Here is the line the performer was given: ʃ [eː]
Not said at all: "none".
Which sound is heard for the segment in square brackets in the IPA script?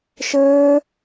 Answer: ɘː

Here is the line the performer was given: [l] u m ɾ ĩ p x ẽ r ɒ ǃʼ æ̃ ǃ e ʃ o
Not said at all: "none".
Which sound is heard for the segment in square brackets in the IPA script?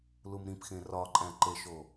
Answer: l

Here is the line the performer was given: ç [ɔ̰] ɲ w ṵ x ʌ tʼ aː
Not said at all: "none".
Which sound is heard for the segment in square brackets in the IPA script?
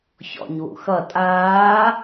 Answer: ɔ̰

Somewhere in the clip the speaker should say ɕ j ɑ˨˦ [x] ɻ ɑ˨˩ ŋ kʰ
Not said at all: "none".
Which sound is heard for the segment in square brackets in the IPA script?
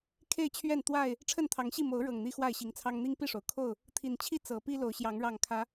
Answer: ŋ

